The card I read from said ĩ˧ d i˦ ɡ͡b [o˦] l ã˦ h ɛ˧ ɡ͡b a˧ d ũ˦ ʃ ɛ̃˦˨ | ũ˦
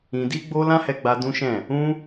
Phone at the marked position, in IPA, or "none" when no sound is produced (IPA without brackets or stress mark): o˦